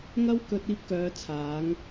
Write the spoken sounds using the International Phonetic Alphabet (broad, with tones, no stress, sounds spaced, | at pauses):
ŋ ɐ˥ w k ɵ˧ t̚ iː˧ p̚ k œː˨˧ t͡sʰ aː˨˧ ŋ